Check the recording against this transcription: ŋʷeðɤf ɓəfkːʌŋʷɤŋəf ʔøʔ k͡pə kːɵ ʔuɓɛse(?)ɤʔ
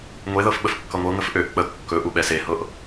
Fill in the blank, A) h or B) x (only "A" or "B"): A